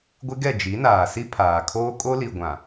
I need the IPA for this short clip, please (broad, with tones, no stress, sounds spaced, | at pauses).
ɡʷ ɪ˦ ɡ ɛ˦˨ d͡ʒ i˨˦ n aː˨ s i˦ pʰ aː˨ kʰ oː˦ kʼ o˦ l i˨ ɡʷ ã˨